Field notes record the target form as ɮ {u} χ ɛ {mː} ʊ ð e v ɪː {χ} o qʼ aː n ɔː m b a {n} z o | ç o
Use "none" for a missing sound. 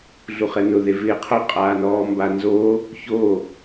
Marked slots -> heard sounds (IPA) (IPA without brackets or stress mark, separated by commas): u, n, qʰ, n